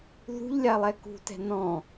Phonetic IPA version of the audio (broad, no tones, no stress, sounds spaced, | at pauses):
ð ṳ ʎ lʲ a lˠ ɛ k ṳ t ɛ̤ n ɔ̃